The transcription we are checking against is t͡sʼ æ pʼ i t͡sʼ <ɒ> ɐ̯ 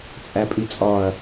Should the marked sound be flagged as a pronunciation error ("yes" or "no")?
no